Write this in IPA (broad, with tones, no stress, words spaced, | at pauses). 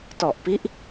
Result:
tɔ˨˩ʔpi˦˥ʔ